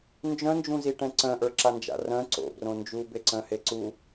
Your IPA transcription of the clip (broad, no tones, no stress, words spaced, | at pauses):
nd͡ʒœ̃nd͡ʒũziʈɛ̃ ǀœ̃ʔə˞ǁand͡ʒa̰ rœ̃ ǀo̰brõ nd͡ʒubeǀœ̃he ǀu